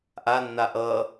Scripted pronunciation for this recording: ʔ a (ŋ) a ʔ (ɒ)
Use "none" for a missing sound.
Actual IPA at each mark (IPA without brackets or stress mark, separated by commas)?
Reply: nː, ʌ